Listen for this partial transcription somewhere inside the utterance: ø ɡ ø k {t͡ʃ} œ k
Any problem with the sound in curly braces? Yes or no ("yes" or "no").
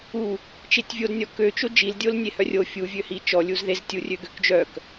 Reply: yes